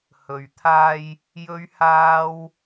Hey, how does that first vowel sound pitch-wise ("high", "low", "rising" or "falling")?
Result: low